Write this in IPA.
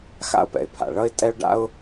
x a̰˥ ʊ̯ p ɛ̰˩ ɪ̯ pʰ a̰˩ ɭ ʌ˥ ɪ̯ tʼ ɛ˥ ʊ̯ ɖ a̰˥ ʊ̯

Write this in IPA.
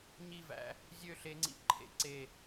ɲ i˧˩ v æ̰˩˧ | zʲ ø˧˩ ɬ e˩˧ ŋ͡ǀ ḭ˩˧ ǃʰ ḛ˧ ǀ e˧˩

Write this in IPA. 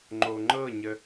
ŋ͡ǃ o ŋ͡ǃ ɤ ɲ ə

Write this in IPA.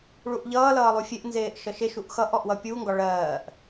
ɭ u ʔ ʎ ʌː l ʌː lˠ u fʲ e ʔ n z eː ʔ ʃ ʌ ʃ e ʃ u ʔ x ʌ ʔ ɔ ʔ w ʌ pʲ u ŋ ɡ ɒ ɭ ɜː ʔ

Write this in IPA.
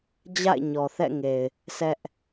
d͡ʑ a̰˦˨ ɪ̯ ɲ ɔ˨ θ ɛ̰˦˨ ŋ e˨ ɪ̯ | sʰ ɛ˦ ʔ

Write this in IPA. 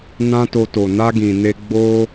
n ã˦ t o˧ t o˨ n a˧ ɡ ĩ˨ n e˧ ɡ͡b o˧

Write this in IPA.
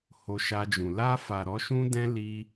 h o˧ ʃ a˧ d͡ʒ ũ˨ l a˧ f a˨ ɾ ɔ˨˦ ʃ ũ˦ d ɛ̃˦ l i˦

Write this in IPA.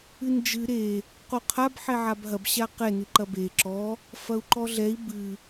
ɨ n d͡ʒ ɨ ɾ e | q o qʰ a b ħ ɛ ʕ a b ɦ ɐ b ɕ a q ɛ n ɨ ǃ ɐ b e ǁ ɔ | f ɐ u̯ ǃ ɔ ɮ ɛ i̯ b ɨ

